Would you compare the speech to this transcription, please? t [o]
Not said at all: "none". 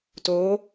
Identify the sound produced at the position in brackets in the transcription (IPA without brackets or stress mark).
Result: o